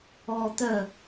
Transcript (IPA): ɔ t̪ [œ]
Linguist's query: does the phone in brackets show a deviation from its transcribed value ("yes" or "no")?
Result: no